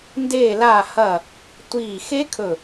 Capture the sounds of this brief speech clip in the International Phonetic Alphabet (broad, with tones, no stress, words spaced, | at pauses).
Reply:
ndeː˧˩laː˧˩hɐː˧˩ | tʷiː˧˩ xe˦˥kʰɵ˧˩